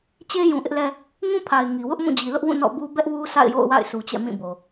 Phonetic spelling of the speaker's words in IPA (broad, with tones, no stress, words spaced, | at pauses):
t͡ɕe˦ jũ˨ʔɪ˦ʔlɛ˦ | ŋũ˦pʰa˨ɪ̯ ŋi˨wʊ˦ʔ mũ˦˨d͡ʑi˨lʊ˦ʔwũ˦˨ nɔ̰˦˨bu˦ bɛ˦ʔwu˦ sa̰˦˨ɪ̯jo̰˦˨ʊ̯wa̰˦˨ɪ̯ sʰu˨t͡ɕɛ̰˦˨ mĩ˦˨bo˨